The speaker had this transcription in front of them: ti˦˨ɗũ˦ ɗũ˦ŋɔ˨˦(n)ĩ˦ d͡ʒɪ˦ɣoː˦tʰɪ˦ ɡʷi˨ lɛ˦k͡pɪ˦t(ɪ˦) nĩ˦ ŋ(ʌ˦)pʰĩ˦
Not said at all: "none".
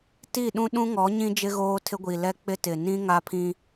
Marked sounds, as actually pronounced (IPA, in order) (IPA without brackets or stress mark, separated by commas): ɲ, ɪ˨, a˦